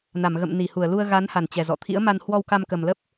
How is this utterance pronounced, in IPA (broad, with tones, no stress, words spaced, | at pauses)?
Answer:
na˧˩mɣə̰˧˨mni˧˩ hu˧˩ə̯lu˧ə̯ ɣa˨˦nha˨˩nt͡ɕɛ˨˩zɔ̰˧˨ t̪ʰḭ˧˥ə̯ma˧n hwɔ˧wka˧mkə˨˩mlə˦˥p̚